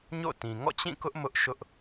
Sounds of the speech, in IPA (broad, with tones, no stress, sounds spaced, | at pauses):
ɲ o̰˦˨ t ĩ˨ ŋ ɔ̰˦˨ t͡ɕ ĩ˦˨ k ʊ˦ ʔ m ʊ˦ ʔ ʃ ʊ˦ ʔ